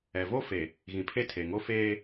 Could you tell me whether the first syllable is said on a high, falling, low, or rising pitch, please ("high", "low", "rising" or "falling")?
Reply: low